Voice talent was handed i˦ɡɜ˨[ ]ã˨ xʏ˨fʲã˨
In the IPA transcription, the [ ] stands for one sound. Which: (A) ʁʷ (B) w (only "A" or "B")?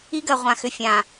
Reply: A